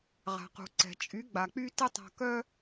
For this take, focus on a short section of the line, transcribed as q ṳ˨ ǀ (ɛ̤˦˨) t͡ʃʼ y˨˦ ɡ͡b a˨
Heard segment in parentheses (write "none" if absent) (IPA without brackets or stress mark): ɛ̤˨